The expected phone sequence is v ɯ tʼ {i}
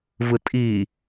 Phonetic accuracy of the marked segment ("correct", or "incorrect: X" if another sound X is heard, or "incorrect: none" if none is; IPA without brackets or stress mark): correct